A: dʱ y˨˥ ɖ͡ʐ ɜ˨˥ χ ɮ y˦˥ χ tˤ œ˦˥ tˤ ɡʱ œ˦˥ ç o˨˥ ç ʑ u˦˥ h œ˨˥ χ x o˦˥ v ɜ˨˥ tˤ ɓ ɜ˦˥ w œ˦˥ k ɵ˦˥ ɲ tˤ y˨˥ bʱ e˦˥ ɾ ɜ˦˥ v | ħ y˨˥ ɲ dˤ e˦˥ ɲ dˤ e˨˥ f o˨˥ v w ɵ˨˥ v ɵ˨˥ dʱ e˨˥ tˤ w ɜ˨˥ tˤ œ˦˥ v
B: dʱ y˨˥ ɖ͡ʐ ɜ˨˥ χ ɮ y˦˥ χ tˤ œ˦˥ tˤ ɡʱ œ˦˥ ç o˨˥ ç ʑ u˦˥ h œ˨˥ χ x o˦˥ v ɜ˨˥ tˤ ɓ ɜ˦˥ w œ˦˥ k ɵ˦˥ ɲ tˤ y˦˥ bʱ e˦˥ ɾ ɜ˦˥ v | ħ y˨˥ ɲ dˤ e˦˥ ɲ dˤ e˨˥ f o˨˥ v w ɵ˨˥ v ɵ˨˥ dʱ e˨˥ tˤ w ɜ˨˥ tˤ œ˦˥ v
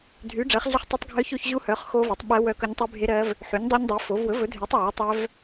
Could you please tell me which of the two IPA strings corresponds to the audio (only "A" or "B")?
B